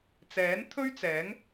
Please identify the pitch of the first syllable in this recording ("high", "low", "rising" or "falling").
rising